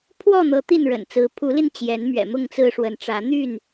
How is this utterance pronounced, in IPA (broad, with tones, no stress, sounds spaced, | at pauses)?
pʰ w ɔ˥˨ n̪ ɤ˨˦ t̪ i˥˨ n ɻ ə̰˨˩ n t͡s ɹ̩˨˦ pʰ u˨˦ l i˧ n t͡ɕ j ɛ˨˦ n m ɥ ɛ̰˨˩ m ʊ˥˨ ŋ t͡s ɹ̩˦ ʂ w ə˨˦ n ʈ͡ʂ ä˨˦ n̪ y˥˨ n